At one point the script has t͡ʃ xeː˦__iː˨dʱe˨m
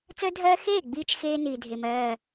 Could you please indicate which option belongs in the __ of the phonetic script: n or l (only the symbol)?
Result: n